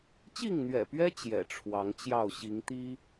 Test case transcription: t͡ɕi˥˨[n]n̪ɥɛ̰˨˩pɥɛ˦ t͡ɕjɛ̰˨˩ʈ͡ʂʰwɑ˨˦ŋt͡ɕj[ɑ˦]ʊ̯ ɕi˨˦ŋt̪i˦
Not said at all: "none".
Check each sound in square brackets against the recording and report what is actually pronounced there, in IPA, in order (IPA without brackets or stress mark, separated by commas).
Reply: ŋ, ɑ˥˨